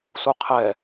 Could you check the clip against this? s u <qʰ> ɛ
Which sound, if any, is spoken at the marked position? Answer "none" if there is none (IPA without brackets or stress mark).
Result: qʰ